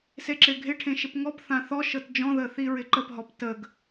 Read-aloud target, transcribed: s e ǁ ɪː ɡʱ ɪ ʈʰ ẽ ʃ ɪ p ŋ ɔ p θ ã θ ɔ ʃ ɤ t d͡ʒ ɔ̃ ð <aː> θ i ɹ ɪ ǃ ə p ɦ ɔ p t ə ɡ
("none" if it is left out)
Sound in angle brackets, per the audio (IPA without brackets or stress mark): əː